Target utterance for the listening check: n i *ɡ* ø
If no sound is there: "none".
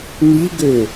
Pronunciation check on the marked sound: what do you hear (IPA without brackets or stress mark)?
ɡ